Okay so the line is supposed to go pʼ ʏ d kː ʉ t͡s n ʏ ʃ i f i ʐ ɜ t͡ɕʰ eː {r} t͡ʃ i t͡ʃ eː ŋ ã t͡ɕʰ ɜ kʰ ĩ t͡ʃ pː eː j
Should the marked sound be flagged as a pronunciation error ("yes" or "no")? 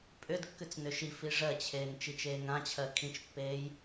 yes